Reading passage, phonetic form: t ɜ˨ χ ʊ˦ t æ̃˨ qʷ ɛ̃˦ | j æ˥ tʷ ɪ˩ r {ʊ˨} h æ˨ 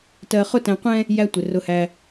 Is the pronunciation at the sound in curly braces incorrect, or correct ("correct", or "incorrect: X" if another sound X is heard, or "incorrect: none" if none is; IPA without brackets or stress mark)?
correct